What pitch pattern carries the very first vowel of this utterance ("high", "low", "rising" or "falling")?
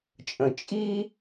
low